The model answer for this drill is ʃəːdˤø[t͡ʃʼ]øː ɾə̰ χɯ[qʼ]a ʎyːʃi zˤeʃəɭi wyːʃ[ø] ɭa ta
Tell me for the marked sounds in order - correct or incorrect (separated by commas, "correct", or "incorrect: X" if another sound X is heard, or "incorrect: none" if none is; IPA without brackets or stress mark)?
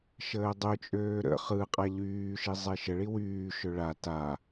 correct, correct, correct